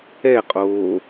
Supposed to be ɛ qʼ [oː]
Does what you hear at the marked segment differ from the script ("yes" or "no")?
no